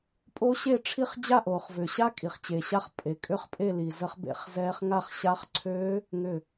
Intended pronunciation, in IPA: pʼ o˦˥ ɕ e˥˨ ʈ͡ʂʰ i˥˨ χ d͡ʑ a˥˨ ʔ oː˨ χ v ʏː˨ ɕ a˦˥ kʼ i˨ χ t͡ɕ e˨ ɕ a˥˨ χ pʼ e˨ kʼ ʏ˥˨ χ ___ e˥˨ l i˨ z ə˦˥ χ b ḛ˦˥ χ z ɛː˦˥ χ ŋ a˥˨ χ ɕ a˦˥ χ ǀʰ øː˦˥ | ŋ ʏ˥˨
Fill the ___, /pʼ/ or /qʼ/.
pʼ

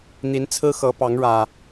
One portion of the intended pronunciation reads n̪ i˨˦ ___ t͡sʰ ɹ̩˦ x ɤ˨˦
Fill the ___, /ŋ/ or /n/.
n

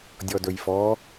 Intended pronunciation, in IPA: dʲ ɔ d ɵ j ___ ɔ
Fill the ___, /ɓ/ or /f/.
f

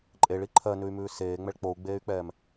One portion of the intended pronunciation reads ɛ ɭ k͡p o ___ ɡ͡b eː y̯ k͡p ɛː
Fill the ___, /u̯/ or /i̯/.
u̯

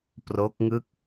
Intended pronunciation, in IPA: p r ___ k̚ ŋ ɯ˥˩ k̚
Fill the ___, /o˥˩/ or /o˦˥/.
o˦˥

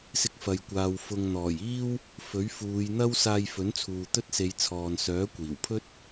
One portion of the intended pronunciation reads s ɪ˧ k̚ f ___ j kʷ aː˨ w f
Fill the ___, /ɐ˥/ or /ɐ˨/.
ɐ˨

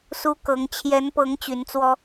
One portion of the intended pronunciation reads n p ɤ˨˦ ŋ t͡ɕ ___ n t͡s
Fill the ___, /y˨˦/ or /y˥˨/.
y˨˦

